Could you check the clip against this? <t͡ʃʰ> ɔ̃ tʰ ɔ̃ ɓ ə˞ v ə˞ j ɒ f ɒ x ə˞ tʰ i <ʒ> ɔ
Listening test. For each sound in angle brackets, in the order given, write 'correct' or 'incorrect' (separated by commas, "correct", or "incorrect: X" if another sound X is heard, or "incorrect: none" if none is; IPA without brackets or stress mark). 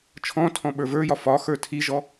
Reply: correct, correct